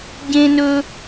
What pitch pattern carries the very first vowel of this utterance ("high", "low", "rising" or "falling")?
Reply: high